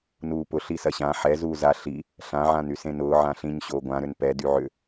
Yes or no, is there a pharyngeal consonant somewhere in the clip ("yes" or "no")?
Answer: yes